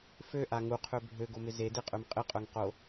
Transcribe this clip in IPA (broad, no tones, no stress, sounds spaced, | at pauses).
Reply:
f ø ʔ a ŋ u qʰ ø bʱ ø ɡ o m ɪ z e d e qʼ ø m qʼ ɪ qʼ œ ŋ q o